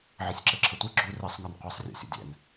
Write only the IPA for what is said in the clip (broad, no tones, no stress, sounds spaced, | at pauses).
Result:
ʕ ə sʲ ǁ ɘ ǁʰ ə tʷ i ɡ͡ǁ u r i sˤ ŋ ɒ n qʷ i sˤ rʲ o̰ sʲ ə̰ dʲ ɛ̰ n